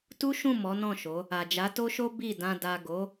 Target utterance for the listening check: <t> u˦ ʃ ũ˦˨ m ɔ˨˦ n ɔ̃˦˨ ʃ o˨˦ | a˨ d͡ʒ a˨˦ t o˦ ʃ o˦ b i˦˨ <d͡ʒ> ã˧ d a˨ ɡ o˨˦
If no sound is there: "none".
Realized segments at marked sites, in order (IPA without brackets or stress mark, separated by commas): t, d